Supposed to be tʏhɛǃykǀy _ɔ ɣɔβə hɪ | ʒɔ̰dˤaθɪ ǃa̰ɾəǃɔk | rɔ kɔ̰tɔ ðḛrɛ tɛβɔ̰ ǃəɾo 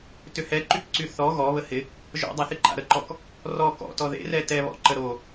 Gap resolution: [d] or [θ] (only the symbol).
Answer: θ